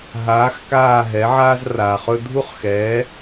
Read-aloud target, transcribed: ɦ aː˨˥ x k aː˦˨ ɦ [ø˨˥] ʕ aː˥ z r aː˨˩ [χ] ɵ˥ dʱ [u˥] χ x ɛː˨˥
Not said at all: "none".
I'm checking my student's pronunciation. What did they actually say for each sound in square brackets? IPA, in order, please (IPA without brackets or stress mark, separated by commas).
ɛ˨˥, χ, u˥